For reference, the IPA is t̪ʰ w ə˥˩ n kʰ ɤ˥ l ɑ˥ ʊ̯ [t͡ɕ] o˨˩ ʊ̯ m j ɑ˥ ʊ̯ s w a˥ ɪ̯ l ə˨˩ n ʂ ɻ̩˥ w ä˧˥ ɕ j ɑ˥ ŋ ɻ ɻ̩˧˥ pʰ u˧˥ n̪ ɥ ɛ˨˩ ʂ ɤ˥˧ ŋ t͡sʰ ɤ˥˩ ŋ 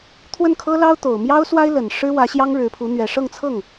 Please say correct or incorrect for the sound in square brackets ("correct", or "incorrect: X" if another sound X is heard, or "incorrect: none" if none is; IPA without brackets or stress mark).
incorrect: t̪